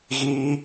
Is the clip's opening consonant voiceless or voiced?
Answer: voiced